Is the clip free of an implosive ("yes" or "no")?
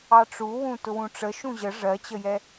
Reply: yes